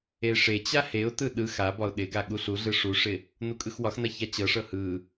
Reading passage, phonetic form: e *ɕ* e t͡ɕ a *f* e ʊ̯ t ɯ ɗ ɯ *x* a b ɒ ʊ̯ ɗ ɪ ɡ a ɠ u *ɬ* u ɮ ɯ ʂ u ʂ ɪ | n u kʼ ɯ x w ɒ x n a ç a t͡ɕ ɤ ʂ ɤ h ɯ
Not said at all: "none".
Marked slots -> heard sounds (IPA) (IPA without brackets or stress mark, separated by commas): ʂ, h, x, ɬ